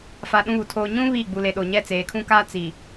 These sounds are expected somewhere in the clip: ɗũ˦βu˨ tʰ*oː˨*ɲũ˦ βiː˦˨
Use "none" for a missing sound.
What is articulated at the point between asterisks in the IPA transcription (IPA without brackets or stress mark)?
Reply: oː˨